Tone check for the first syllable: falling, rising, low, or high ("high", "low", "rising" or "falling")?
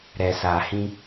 low